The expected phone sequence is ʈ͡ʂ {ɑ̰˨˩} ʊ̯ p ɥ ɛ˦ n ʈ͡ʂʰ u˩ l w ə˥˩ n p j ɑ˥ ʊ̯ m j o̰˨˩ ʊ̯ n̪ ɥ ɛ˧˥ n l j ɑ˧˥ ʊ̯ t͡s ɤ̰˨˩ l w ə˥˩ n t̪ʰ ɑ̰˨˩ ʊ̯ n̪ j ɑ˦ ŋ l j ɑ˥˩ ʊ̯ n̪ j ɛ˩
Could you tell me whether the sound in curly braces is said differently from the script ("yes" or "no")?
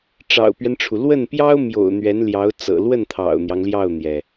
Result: no